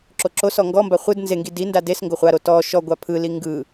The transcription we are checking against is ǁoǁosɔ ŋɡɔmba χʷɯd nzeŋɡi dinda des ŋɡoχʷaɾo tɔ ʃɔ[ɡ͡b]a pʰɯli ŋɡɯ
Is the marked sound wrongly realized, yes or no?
yes